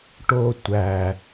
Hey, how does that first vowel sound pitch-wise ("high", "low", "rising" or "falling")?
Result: low